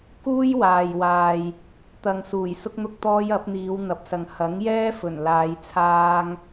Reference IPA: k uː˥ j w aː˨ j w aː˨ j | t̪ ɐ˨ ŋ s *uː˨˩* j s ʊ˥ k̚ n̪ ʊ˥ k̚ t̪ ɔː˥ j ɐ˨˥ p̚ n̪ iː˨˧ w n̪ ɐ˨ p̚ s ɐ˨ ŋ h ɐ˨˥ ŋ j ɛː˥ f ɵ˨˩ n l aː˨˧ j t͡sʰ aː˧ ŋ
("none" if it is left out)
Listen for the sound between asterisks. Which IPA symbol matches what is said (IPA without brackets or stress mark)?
uː˨˩